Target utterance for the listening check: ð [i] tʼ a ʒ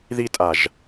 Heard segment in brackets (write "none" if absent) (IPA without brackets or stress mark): i